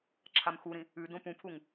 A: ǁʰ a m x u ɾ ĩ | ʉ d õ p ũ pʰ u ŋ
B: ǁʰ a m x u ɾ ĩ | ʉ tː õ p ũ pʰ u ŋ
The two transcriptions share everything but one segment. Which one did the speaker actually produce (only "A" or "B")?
A